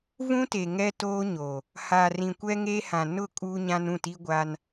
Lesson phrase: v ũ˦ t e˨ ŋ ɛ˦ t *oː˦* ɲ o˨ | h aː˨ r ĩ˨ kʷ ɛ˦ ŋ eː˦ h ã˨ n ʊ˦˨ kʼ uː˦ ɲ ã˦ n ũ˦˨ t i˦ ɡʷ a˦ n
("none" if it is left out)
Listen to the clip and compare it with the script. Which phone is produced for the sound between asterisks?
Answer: oː˦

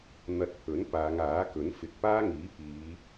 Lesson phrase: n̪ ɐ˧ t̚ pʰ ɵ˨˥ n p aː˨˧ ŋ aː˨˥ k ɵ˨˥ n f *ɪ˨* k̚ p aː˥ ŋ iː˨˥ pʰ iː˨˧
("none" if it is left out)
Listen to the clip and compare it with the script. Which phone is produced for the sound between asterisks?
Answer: ɪ˨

